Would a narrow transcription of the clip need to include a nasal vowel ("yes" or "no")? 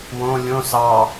yes